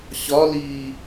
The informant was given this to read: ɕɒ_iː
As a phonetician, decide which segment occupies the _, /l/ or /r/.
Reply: l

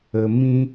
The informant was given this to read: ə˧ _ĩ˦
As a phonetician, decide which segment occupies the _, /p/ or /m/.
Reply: m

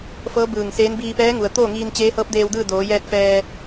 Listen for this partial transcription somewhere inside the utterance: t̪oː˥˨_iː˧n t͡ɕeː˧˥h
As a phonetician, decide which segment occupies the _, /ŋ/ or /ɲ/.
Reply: ŋ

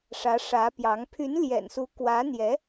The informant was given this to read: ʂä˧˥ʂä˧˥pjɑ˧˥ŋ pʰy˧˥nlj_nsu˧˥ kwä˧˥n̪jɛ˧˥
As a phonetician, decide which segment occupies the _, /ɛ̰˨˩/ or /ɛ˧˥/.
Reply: ɛ̰˨˩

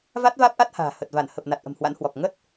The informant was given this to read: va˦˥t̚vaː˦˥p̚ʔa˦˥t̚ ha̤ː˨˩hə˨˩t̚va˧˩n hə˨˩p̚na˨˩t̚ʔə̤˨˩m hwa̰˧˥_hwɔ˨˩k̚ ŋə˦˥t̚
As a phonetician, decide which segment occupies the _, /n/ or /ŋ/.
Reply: n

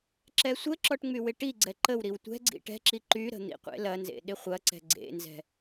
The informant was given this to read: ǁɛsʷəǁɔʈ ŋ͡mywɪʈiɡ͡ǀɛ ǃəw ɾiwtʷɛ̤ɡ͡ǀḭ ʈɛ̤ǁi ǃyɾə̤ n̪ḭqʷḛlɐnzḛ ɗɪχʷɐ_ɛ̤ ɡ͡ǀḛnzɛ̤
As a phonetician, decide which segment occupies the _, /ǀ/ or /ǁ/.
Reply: ǀ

